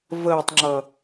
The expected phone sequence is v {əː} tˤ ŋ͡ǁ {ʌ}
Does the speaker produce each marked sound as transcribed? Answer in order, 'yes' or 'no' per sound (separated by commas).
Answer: yes, yes